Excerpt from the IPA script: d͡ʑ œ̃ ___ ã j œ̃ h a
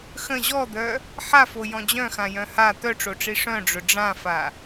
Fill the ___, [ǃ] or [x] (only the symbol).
x